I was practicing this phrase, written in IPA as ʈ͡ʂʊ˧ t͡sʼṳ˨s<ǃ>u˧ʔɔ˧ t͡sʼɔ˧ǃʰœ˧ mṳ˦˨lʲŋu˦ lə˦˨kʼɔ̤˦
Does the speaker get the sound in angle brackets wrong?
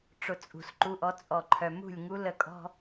no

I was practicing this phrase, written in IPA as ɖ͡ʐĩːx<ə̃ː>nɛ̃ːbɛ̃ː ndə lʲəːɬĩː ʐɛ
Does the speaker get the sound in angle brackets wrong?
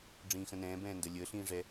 yes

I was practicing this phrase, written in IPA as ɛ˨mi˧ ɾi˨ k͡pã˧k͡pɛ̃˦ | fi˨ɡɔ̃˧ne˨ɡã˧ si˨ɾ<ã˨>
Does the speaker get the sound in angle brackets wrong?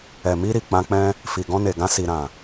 no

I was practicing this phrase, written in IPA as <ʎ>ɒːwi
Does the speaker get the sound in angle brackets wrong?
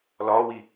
yes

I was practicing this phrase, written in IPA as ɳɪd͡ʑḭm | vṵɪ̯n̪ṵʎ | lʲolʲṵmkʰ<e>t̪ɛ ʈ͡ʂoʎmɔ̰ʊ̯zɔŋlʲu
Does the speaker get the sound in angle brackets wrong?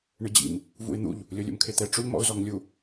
no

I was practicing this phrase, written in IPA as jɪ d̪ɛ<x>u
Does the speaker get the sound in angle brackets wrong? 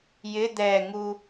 yes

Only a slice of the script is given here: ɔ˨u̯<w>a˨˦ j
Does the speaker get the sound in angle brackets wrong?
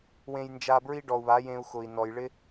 yes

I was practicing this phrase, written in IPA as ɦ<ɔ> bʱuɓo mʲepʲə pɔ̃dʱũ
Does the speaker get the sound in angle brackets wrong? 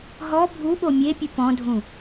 no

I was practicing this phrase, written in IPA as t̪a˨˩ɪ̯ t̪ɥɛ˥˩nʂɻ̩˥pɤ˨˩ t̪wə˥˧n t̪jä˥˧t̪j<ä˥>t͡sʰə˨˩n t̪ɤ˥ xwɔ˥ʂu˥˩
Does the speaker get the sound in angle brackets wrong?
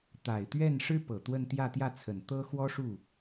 yes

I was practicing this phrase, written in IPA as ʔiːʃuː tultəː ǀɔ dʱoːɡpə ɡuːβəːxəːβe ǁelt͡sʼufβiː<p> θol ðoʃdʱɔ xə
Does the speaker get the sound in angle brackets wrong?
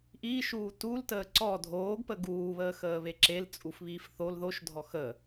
yes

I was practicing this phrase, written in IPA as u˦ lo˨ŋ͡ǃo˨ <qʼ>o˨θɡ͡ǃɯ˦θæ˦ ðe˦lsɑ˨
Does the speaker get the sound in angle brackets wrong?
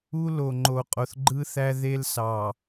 no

